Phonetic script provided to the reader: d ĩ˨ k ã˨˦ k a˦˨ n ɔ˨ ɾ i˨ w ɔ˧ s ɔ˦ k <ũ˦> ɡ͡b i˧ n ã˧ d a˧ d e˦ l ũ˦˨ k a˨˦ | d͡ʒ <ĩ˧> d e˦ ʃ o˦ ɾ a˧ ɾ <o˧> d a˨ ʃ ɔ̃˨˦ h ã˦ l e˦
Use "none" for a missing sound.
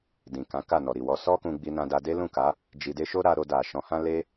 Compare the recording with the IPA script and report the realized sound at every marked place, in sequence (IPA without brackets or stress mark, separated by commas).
ũ˧, i˧, o˧